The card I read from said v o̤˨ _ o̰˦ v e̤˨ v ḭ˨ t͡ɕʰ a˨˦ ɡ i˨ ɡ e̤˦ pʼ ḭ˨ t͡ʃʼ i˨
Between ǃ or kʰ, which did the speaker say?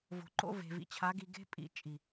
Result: ǃ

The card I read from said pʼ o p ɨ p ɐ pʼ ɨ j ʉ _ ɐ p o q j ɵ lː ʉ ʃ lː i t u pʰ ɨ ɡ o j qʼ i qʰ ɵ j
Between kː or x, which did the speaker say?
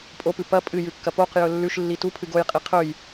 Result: kː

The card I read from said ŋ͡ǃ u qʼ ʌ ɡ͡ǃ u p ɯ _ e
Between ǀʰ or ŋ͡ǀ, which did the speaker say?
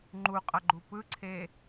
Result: ǀʰ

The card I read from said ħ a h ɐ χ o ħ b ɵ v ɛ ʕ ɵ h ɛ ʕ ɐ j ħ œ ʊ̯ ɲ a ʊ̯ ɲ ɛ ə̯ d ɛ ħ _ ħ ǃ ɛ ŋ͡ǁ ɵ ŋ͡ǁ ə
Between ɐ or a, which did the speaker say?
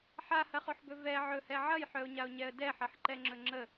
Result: ɐ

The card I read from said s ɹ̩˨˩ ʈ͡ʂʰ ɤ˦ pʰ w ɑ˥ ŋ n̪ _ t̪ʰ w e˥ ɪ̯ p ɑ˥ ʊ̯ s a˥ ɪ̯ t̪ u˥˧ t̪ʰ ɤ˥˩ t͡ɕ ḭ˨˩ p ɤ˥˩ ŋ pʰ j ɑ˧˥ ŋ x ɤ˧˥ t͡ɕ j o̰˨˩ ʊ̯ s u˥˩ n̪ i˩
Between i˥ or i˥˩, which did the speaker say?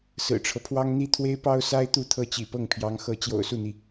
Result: i˥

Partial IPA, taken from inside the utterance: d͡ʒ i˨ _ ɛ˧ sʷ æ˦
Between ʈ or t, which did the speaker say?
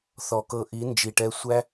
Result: ʈ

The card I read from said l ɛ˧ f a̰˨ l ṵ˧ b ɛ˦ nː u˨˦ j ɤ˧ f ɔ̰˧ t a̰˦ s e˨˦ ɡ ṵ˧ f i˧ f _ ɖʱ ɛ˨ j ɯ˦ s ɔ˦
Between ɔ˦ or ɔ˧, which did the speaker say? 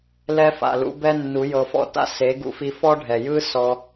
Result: ɔ˦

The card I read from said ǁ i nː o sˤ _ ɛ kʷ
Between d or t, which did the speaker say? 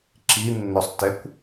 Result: t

